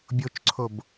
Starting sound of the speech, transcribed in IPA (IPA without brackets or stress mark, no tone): bʲ